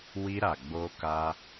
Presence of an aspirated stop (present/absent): absent